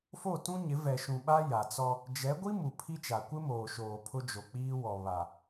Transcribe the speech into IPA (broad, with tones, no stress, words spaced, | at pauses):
fo˦˨tũ˦ɲɪ˨˦ vɛ˨ʃũ˨ɓa˦ ja˨t͡sɔ˦ | d͡ʒɛ˨˦ɡʷi˦mu˨ pʰi˦t͡ʃa˨ kʷɪ˦moː˨ʃoː˨ pʰʊ˦d͡ʒo˨k͡piː˦wɔ˨ βa˨